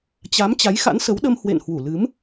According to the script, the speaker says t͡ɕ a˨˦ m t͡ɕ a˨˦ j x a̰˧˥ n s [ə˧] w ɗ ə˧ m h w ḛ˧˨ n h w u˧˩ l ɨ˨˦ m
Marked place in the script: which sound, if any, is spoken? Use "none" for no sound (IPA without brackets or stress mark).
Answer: ə˨˦